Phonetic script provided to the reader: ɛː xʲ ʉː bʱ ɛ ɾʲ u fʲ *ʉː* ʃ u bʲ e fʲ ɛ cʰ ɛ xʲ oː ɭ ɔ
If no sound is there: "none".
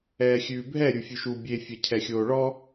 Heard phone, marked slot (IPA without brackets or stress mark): ʉ